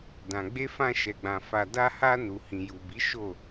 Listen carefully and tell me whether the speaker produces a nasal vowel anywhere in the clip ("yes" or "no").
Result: yes